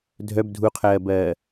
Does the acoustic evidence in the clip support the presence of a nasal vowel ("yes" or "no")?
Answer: no